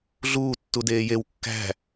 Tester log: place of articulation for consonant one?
alveolar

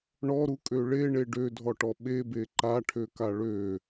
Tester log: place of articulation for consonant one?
retroflex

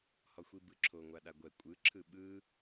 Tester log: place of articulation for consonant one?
glottal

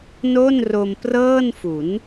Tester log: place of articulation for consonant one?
alveolar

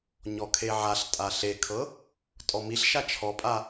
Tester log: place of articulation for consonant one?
palatal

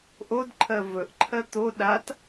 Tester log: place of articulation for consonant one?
glottal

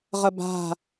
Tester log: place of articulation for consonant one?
uvular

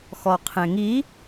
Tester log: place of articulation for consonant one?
velar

